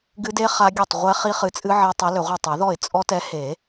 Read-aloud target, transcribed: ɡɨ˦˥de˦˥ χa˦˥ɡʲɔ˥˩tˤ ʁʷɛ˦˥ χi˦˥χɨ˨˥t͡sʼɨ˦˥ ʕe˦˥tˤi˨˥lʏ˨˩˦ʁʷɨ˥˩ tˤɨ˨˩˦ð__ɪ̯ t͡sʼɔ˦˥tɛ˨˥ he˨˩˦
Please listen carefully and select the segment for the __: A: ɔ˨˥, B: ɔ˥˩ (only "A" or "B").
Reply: B